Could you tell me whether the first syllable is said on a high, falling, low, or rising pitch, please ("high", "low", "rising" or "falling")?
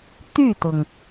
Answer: falling